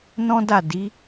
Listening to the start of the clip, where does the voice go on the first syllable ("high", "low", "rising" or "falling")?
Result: high